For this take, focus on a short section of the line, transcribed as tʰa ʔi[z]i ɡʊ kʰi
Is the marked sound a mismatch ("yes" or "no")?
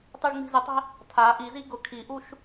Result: no